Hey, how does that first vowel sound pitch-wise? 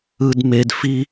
low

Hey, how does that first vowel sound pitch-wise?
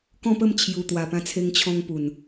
falling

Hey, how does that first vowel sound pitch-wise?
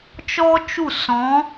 high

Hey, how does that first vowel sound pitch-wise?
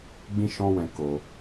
high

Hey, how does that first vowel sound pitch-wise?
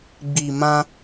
low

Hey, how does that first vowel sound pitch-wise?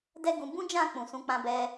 high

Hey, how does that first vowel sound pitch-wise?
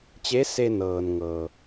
rising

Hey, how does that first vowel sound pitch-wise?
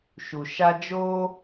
low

